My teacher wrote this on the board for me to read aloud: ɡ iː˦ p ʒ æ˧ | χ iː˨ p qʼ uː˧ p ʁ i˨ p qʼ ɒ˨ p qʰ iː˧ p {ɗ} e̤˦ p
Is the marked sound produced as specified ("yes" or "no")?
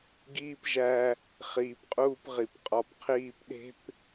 yes